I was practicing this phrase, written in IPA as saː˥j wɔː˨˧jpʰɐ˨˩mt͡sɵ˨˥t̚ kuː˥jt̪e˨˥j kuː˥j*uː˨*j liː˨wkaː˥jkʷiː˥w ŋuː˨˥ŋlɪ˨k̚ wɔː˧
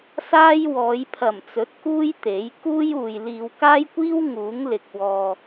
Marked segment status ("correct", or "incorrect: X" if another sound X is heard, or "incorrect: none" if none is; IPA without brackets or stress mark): correct